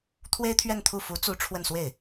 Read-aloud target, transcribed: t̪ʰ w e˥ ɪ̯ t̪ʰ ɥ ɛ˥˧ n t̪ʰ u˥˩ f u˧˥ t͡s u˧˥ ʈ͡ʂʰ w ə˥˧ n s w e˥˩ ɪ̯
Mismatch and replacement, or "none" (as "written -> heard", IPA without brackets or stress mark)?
none